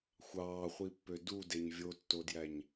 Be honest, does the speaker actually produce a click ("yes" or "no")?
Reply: no